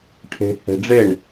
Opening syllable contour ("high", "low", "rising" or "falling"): low